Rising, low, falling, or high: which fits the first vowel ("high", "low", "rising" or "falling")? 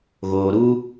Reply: low